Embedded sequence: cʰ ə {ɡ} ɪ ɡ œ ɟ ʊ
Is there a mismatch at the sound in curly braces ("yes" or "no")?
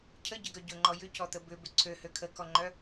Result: yes